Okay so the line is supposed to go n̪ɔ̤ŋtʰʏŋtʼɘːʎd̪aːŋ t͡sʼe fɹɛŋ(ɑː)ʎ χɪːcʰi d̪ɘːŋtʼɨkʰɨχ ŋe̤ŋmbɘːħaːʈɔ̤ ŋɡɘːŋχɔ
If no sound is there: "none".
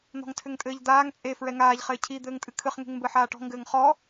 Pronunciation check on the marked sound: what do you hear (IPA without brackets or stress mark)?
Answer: aː